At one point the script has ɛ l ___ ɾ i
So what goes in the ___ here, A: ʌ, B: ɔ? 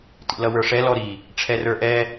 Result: B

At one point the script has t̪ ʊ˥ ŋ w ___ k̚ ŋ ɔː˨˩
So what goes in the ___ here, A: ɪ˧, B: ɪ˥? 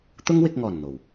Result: A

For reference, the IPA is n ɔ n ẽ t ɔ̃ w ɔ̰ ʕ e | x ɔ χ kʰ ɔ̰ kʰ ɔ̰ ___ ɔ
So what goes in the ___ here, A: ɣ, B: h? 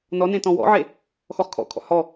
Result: B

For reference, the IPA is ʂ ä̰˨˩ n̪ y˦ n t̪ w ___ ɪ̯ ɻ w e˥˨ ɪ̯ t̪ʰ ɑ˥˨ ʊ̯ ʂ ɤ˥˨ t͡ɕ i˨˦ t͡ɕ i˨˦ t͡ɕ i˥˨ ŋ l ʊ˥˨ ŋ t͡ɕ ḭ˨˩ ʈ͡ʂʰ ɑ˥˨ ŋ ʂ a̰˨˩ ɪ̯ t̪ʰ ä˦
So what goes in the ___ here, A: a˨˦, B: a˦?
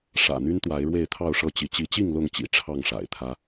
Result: A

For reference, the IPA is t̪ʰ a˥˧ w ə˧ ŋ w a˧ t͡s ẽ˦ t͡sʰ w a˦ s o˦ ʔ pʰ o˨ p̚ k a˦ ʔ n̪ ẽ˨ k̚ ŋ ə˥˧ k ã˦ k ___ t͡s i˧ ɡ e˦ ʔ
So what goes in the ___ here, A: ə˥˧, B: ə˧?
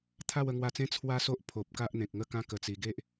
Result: B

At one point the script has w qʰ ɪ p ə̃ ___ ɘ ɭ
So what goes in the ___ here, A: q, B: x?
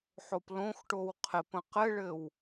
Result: A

